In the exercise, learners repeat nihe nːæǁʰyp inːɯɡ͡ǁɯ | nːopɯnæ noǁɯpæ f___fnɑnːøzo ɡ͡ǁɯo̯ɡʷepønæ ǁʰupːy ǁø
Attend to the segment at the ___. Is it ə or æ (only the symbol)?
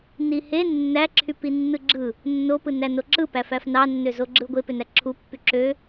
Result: æ